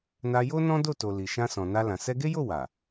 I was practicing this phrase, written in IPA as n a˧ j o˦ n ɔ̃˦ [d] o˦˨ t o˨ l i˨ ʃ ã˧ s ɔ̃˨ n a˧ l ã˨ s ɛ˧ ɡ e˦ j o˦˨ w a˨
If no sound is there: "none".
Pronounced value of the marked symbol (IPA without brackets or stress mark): d